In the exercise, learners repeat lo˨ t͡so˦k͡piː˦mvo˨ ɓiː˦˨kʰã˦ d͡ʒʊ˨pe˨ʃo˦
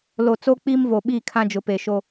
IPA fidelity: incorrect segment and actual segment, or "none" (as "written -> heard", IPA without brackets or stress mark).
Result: none